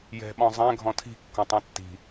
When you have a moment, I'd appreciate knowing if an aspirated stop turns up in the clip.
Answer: yes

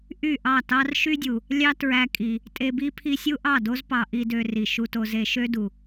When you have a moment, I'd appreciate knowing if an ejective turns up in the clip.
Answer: yes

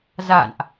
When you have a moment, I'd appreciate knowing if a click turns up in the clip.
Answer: no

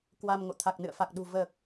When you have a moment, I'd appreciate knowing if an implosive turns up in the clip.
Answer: yes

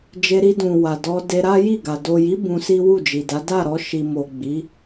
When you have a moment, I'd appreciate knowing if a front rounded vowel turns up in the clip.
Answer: no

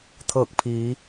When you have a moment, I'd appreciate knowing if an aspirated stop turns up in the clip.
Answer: yes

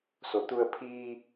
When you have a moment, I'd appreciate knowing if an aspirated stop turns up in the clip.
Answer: yes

